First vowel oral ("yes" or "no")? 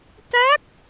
yes